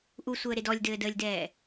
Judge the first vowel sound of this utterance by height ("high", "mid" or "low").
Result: high